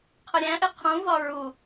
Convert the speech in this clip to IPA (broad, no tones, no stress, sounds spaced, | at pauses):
qʰ ʊ ɾʲ æ̃ ʔ ɪ qʰ ũ v ɒ ɹ u